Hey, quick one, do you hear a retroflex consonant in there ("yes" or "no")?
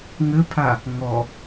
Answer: no